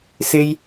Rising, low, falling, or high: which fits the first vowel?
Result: high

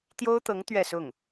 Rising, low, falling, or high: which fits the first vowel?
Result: high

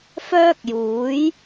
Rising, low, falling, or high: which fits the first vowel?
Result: high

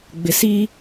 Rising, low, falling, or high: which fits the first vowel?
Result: low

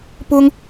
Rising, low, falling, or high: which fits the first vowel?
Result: high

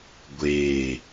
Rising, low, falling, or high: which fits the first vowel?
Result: falling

